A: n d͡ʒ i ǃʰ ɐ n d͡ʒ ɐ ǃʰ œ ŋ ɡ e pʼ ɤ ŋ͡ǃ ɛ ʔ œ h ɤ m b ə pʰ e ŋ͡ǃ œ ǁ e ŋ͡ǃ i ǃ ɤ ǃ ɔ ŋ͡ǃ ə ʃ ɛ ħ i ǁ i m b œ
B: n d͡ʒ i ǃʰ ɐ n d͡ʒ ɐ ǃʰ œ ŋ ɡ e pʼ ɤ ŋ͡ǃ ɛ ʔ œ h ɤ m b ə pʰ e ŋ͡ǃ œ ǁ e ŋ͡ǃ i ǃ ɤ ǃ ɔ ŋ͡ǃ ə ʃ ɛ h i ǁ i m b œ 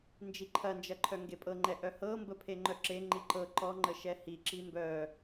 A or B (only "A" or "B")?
B